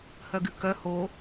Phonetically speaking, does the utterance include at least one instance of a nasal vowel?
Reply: no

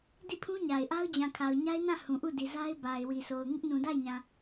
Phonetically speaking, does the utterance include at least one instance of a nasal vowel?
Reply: yes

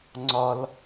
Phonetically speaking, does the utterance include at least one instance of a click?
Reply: yes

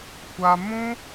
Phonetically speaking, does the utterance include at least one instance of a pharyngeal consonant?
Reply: no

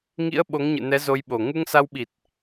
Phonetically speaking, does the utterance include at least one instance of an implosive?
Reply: yes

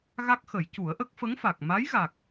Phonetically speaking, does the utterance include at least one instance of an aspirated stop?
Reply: no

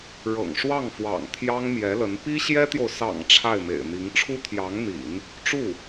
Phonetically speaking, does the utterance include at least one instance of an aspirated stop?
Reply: yes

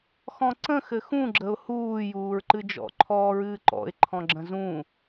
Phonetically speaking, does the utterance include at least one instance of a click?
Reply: yes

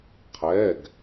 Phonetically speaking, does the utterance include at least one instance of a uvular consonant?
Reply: yes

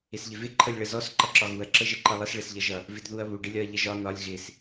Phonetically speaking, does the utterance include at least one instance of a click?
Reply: yes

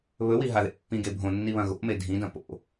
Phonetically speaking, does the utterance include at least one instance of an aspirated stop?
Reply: no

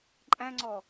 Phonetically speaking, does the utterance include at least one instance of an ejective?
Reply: yes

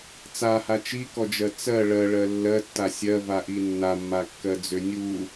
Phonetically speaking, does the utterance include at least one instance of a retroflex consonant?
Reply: yes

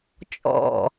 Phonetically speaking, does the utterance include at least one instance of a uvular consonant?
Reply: no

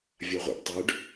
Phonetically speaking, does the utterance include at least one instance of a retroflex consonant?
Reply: yes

